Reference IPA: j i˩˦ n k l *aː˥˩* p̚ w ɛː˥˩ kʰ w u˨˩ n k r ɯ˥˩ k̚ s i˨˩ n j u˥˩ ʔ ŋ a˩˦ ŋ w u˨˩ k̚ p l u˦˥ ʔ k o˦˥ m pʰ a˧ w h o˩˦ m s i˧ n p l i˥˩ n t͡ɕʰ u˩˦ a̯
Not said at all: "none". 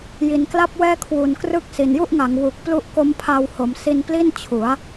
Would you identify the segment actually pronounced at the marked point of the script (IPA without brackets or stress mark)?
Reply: a˥˩